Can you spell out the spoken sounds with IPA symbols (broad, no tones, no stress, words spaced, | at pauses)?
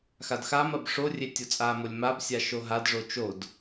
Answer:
xadxamɐb ʂorʲe tʲot͡sʼamolʲ mabsʲa ʃoɦadʐo t͡ʃod